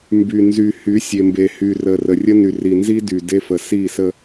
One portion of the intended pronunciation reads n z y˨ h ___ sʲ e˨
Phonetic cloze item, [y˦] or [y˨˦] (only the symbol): y˨˦